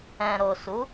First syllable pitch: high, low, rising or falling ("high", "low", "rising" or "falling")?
low